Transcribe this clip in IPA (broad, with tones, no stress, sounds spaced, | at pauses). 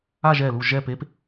a˥˧ ʒ ɛ˧˩ l u˧˩ ʒ ɛ˧˩ p e˨˦ p